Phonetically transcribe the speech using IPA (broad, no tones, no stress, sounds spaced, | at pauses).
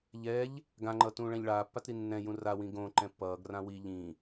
ʎ ɛ ʎ | ɡ ã ŋ͡ǃ ʌ t ũː ɭ ɛ̃ ʎ ɭ aː pː a t ɾ i nː ɛ̃ j ũ r a w ĩ ɡ õ ǃ ɛ̃ pː ʌː ɡ r ã w i ʎ ĩ